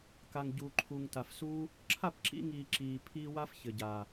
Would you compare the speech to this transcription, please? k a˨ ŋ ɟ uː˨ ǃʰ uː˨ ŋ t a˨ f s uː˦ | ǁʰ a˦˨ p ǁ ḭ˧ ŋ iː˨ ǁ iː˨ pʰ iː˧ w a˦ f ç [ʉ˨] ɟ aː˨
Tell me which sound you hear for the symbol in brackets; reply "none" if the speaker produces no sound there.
ɘ˨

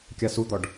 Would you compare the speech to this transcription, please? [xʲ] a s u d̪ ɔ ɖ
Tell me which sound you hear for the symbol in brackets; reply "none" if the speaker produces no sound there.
kʲ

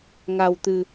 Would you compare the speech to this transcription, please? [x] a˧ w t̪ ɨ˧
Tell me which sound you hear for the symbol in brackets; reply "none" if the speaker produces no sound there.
ŋ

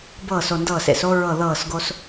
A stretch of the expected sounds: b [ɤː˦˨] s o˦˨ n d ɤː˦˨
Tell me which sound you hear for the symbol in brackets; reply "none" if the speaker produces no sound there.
ɤː˦˨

